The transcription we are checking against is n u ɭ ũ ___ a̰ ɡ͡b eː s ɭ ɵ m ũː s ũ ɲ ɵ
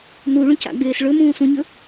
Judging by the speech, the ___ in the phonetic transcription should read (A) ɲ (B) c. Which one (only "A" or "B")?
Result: B